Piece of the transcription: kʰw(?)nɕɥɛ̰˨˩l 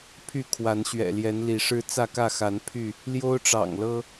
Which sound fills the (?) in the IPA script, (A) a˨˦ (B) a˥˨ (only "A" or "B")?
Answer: A